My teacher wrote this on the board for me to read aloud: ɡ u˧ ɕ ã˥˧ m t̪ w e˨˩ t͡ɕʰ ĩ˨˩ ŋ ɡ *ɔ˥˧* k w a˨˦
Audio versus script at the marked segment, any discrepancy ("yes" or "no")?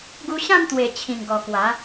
yes